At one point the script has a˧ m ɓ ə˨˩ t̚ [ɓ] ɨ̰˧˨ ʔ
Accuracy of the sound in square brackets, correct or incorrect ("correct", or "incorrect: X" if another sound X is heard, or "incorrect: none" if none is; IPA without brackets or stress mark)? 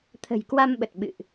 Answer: correct